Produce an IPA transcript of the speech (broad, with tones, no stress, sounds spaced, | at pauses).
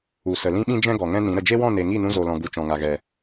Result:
u˨ s ə˨ l ĩ˦ ɓ ĩ˦ d͡ʒ ɛ̃˦ ɡ ɔ˨ ŋ ɛ̃˦ n ĩ˨˦ ɾ ə˨ d͡ʒ e˦ w ɔ̃˦˨ n e˨ ŋ i˦˨ n ũ˧ z o˨ l ɔ̃˨ ɡ u˨ t͡ʃ ɔ̃˨ ŋ a˨ ɣ ɛ˨